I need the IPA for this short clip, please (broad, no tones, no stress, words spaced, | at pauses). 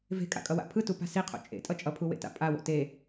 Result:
ve̤kʼa̰kʼʌwa̰ pʰɯtupa̤ siqʰo̰ t͡ʃʼḛtʼʌ t͡ʃʼʌpʰuwḛta̰ pʼawo̰ te